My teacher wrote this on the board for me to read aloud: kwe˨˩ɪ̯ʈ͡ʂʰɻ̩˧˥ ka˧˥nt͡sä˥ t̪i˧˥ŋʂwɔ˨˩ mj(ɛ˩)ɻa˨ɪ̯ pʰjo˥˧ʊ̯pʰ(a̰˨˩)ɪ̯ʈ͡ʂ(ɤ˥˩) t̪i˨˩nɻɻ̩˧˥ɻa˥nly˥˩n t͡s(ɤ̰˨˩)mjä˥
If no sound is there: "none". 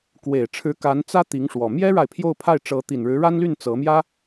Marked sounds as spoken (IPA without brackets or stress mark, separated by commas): ɛ˥, a˥˩, ɤ˧˥, ɤ˧˥